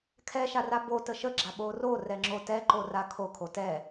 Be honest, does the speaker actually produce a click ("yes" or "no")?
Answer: yes